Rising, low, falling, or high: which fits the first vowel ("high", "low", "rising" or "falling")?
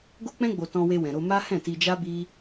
high